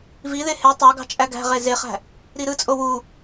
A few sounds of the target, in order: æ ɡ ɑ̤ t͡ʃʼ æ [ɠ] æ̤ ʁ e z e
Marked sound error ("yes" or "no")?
yes